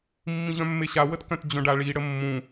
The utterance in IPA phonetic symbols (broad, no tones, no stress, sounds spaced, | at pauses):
mː ĩ ʑ œ̃ mː e ɕ a w ə t k œ̃ t d͡ʑ œ̃ ɖ a ɭ i ɽ ə mː ũ